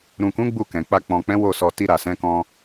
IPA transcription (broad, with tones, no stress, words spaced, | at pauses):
ɾũ˨kũ˨˦ ɡ͡bu˦˨kɛ̃˨k͡pa˧ k͡pɔ̃˨k͡pɛ̃˨˦ wo˦˨sɔ˧ ti˧ɾa˨sɛ̃˨˦kɔ̃˧